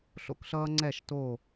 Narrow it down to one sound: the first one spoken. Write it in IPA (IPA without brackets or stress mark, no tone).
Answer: ɬ